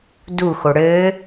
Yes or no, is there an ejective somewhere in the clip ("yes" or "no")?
no